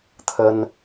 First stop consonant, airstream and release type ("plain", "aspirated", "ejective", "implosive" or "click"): aspirated